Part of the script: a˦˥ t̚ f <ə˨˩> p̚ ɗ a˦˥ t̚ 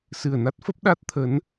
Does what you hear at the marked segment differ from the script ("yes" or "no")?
yes